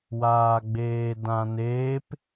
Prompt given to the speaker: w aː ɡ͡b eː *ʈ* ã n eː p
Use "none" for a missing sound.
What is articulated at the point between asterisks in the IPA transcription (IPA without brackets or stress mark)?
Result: d